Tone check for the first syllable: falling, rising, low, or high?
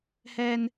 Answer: high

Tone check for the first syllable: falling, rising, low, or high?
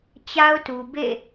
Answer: high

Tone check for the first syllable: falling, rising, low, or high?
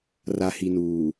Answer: low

